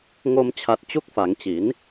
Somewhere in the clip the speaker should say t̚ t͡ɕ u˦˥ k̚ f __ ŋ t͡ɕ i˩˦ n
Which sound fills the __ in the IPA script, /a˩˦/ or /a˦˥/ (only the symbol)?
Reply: a˩˦